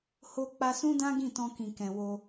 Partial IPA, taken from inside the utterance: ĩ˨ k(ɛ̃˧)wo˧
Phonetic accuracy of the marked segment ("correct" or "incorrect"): incorrect